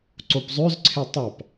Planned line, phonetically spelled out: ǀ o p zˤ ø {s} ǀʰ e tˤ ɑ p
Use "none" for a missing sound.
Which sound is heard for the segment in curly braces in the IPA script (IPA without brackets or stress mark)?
z